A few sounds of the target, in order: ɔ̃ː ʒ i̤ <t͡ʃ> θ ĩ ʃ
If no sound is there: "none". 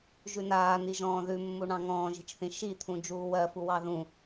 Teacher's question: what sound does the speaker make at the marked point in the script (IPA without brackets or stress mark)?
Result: t͡ʃ